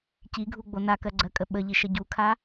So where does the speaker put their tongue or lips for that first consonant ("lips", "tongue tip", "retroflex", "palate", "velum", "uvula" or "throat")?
palate